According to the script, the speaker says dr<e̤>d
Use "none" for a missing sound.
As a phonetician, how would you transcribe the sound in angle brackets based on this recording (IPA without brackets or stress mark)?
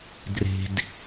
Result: e̤